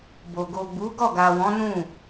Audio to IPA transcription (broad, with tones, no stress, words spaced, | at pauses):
bo˨ ɡo˨ ɡ͡bu˨˦ɡɔ˦˨ ɡa˨wɔ̃˨˦nũ˦˨